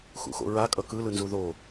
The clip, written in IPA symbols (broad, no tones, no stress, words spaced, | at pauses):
xṵxo̰ɹakʼʌ kɯlɯnzu ðo